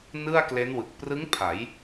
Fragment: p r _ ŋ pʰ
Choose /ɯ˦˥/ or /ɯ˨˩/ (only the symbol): ɯ˦˥